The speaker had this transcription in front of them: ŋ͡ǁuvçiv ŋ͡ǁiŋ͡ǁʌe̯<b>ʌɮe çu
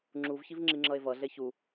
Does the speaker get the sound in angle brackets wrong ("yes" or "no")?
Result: yes